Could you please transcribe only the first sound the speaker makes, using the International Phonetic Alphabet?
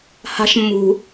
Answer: h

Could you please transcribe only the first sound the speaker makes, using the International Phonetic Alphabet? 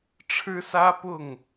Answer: ʈ͡ʂʰ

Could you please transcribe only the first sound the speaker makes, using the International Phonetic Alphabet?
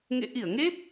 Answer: ŋ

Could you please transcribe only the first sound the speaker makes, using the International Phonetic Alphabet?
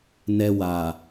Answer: n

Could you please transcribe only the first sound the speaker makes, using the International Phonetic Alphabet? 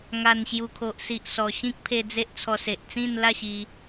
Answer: ŋ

